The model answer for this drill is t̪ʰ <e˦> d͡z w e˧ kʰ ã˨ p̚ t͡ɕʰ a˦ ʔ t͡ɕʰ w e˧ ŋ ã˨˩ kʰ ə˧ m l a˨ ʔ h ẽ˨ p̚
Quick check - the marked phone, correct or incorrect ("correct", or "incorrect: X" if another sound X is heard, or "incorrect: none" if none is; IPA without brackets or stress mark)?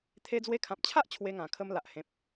incorrect: e˧